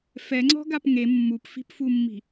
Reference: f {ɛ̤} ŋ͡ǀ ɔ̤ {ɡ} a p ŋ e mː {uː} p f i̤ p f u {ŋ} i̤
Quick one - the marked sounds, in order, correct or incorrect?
incorrect: ɛ, correct, incorrect: u, incorrect: mː

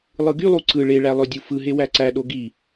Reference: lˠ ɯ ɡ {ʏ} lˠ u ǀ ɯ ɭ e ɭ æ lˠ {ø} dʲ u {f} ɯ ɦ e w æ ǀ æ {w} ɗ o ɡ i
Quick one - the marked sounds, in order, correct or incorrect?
incorrect: y, correct, correct, incorrect: none

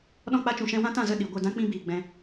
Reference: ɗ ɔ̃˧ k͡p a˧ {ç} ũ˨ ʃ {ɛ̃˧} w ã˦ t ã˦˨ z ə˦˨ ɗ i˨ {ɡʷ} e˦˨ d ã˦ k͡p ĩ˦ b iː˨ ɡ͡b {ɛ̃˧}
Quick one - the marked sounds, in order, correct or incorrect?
incorrect: t͡ʃ, correct, correct, correct

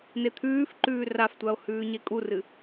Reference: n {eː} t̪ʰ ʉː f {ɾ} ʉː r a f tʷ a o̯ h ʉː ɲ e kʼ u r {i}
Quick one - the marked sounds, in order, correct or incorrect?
incorrect: e, incorrect: ǃ, incorrect: ɨ

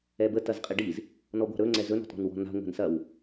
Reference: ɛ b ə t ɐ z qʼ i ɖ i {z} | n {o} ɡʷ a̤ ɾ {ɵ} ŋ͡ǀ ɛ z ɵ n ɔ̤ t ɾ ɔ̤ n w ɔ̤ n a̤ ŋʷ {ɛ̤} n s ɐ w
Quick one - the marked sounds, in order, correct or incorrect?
correct, incorrect: ɔ, correct, correct

